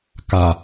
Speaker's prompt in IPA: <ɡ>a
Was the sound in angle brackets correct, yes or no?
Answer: no